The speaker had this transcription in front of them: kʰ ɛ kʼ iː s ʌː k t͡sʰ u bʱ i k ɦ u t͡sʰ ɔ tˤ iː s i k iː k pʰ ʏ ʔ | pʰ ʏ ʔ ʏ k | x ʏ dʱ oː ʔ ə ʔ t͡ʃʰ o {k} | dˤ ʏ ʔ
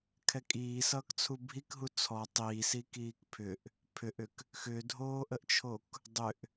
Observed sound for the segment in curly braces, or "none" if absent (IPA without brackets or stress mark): k